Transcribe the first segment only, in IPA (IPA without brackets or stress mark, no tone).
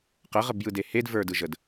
q